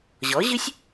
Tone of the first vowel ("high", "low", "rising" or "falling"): rising